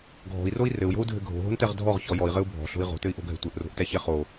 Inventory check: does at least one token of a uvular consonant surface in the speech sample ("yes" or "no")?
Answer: yes